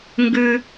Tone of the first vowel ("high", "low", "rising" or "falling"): high